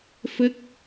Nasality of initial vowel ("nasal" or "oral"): oral